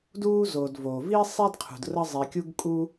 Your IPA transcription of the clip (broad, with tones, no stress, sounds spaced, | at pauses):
d uː˥ z oː˩ d v oː˩ v iː˥ sˤ i˥ d qʰ ṳ˩ d r ə˥ zˤ i˩ kʲ u˥ ɡ kʼ u˥